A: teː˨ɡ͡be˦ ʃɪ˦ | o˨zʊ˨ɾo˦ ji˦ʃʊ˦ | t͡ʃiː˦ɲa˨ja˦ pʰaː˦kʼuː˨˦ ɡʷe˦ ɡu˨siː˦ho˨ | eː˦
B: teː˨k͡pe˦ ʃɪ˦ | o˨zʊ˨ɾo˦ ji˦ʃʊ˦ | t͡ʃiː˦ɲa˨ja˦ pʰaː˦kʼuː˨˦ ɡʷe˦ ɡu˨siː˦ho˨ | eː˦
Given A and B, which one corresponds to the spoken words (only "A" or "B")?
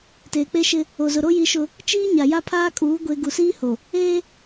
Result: B